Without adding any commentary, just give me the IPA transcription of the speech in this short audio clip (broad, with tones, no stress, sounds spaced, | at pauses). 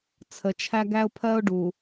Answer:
t͡sʰ ə˨ t͡ʃʰ æ˦ ɡ æ˦ ʊ̯ pʰ ɜ˦ ʊ̯ ɖ u˨